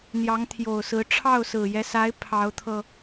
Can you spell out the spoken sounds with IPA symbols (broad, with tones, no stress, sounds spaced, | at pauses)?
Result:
n̪ j ɑ˧˥ ŋ t̪ʰ j o˨˩ ʊ̯ s ɹ̩˧˥ ʈ͡ʂʰ ɑ˥˩ ʊ̯ s ɹ̩˨˩ j ɛ˦ s a˧˥ ɪ̯ pʰ ɑ˧˥ ʊ̯ t̪ʰ ɤ˧